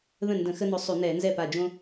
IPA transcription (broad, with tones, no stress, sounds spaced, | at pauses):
ð ə̃˥˩ n d ə̃˧˩˧ x ə˦ n ʊ˨˦ sˤ ʉ˧˩˧ n ɛ˧˩˧ n z ɛ˥˩ p a˧˩ d͡ʒ õ˦